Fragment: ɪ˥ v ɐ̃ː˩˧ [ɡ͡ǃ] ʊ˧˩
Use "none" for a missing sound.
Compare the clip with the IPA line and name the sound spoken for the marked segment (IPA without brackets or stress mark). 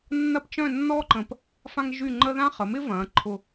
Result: ǃʰ